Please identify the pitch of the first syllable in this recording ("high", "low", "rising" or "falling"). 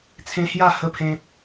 high